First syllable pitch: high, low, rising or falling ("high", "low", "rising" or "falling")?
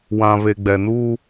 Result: low